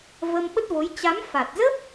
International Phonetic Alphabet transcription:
və˧mɓə˦˥t̚vo˨˦j t͡ɕa˨˦mfa˨˩t̚zə˦˥p̚

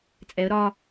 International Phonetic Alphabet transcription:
t͡sʼɛə̯ ɾɒ

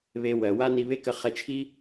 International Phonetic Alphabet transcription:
βe˧wɜ˩wa˥ ni˧βe˥kə˧ χɛ˧t͡ʃʰi˥

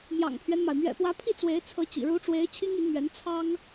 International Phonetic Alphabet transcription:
mjɑ̰˨˩ŋpʰɥɛ˦nma˩ɪ̯ mɥɛ̰˨˩pwä˧˥pʰi˥˩ t͡swe˧˥ɪ̯t͡sʰɤ˧˥t͡ɕḭ˨˩ ɻu˧˥ʈ͡ʂwe˧˥ɪ̯ t͡ɕʰi˥ŋi˧˥nmɥɛ˧˥n t͡sʰɑ˥ŋ

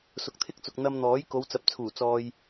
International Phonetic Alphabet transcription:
sʊ˨k̚t̪ʰɪ˥k̚t͡sʊ˨k̚ n̪ɐ˧mn̪ɔː˨˥j ko˨˧wt͡sɐ˨p̚t͡sʰuː˨˩ t͡sɔː˧j

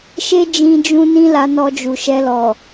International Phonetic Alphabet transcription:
ʃe˦ d͡ʒĩ˧d͡ʒũ˧ nĩ˦la˧nɔ˧d͡ʒu˨ ʃɛ˧lɔ˨

